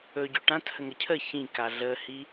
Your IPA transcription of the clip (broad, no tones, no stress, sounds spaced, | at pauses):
ɵ ɟ ɵ ʈ ã t h ə ŋ ə cʰ ə ç ĩ k a ɮ ə h i